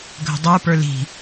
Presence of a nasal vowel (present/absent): absent